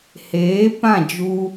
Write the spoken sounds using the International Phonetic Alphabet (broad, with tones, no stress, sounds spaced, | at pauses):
h eː˨˦ p ã˦˨ d͡ʒ u˧